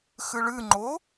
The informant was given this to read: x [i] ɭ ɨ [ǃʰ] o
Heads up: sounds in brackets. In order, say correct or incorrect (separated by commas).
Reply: incorrect, incorrect